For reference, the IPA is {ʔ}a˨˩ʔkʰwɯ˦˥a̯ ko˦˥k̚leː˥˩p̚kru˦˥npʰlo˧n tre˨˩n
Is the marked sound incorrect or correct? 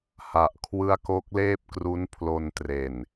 incorrect